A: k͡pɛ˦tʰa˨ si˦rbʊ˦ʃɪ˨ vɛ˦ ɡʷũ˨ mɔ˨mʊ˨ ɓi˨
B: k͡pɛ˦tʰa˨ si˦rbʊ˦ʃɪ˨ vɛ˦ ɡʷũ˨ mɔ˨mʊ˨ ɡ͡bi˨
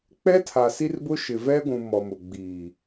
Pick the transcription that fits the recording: B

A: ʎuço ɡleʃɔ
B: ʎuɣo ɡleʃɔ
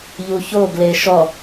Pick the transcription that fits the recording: A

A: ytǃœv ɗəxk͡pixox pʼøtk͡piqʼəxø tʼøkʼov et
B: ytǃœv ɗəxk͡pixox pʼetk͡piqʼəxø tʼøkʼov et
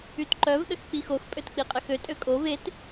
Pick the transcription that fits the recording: A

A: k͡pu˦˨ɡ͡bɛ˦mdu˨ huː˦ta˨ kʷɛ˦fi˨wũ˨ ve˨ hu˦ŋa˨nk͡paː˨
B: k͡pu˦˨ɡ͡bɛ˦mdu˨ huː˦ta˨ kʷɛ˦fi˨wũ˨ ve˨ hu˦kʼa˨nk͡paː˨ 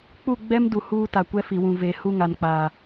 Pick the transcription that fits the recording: A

